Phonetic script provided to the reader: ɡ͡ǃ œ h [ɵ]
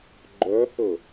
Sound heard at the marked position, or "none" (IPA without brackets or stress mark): ɵ